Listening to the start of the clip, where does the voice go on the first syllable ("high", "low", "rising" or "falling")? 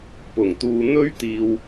low